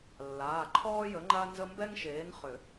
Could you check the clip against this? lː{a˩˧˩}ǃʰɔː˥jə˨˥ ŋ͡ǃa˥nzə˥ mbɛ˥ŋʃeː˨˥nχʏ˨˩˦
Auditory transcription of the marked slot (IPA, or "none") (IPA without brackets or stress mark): aː˩˧˩